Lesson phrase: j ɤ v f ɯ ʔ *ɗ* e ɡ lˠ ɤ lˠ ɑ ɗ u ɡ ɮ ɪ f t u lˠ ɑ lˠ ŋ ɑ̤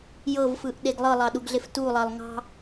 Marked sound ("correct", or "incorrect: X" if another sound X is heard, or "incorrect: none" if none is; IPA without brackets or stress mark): correct